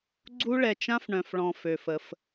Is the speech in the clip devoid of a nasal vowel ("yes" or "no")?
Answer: no